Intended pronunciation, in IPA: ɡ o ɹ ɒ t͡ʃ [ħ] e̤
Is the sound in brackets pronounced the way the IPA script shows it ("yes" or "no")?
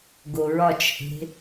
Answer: no